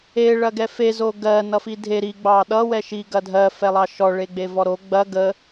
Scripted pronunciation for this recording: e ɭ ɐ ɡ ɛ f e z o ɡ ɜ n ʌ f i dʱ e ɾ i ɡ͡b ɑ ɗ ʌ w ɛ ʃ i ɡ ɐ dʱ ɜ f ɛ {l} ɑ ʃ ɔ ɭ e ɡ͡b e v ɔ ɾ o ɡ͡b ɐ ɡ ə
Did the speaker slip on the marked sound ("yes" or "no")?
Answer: yes